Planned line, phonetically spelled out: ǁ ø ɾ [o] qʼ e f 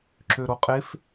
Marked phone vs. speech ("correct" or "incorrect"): correct